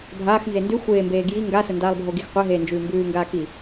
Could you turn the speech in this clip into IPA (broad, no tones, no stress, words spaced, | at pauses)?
bʱaːxnze ndʉ xʷeːmbeː ɡji ŋɡasəndaːlˠbʱo ɡixqʷeɦeːnd͡ʒʉː mbʉːŋɡaːki